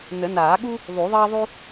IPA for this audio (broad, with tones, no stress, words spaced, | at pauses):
nə˨˩˦naː˨˩˦ɠu˦ | ðˤu˨˩˦ðˤɐː˦ðˤu˦